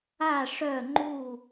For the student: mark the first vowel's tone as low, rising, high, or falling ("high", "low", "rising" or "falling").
falling